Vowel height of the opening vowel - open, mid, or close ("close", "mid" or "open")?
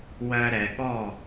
mid